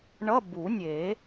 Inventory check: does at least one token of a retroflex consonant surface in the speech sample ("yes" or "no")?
yes